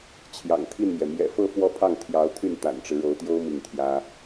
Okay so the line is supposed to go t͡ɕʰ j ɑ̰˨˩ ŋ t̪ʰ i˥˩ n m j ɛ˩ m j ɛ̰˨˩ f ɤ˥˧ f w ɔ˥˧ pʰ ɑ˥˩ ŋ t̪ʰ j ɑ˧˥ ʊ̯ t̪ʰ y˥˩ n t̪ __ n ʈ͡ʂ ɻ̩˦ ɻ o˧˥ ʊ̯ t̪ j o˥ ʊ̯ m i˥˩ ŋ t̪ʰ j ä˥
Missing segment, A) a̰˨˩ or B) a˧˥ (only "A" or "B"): A